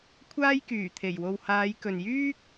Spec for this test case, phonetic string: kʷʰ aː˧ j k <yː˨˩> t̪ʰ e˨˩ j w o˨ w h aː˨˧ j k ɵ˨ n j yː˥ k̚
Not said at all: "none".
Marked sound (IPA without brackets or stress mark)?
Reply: yː˨˩